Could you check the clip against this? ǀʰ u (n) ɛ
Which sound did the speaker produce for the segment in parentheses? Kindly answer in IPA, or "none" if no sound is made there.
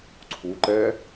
ǃ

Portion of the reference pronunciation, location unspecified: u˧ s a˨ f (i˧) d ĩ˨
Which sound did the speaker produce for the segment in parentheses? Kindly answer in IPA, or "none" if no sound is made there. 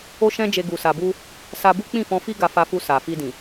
i˧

